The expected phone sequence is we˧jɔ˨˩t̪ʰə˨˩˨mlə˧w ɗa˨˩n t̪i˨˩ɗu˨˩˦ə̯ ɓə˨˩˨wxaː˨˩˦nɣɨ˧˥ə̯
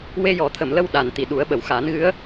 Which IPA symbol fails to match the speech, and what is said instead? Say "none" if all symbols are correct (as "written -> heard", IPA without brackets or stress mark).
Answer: none